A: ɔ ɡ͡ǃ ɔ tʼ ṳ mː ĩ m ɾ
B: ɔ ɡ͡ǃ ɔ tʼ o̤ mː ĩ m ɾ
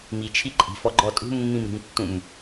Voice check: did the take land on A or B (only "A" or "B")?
A